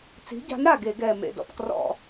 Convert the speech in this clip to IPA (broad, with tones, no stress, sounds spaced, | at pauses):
t͡s i̤˨˥ ɟ a̤˨˥ n ɾ a˨˩ ɡ e˧˩˧ ɡ ɛː˨˩ m ḛ˨˩ d ɔ̰˨˩ p k r ɔ̰˧˩˧